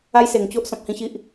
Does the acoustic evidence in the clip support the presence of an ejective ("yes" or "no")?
no